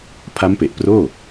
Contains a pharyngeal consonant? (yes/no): no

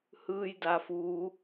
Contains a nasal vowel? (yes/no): no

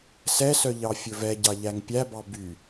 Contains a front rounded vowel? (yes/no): yes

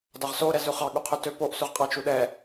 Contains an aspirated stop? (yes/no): yes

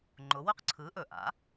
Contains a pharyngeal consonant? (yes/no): no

